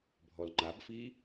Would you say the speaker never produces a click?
no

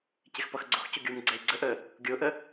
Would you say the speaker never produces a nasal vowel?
yes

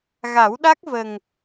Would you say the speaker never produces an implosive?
no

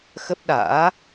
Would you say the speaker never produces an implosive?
no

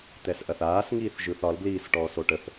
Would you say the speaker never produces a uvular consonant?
yes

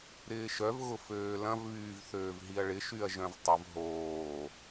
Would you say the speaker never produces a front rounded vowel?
no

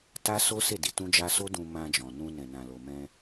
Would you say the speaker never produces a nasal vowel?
no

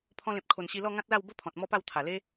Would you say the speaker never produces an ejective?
yes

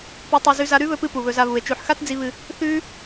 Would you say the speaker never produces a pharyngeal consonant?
no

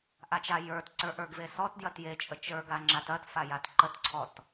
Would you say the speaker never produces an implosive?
yes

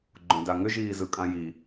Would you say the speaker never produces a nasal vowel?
no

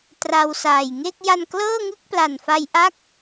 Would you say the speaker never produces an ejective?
yes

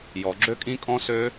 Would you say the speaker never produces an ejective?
no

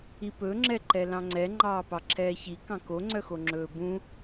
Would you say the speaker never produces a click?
no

